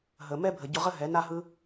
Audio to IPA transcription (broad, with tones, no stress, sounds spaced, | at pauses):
ɦ ə˨ m ɛ˦ bʱ ə˨ ɟ ʊ˧ ʁ ə˦ ɦ ɛ˨˦ n a˦ ɦ ɯ˦